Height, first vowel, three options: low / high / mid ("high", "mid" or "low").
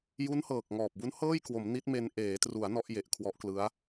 high